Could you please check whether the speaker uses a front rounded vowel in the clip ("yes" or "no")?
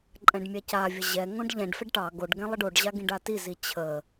no